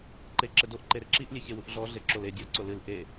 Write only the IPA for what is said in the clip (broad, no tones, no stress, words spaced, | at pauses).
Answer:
ǃeǁɘdoʔ ǃeɾɘǁiʔ lʲeçewuʔɮɔ ɮeǁole dʲɔ ǀolɨl ʔe